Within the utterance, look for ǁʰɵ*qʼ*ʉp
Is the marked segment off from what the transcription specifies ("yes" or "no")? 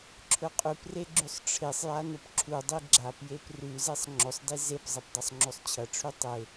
no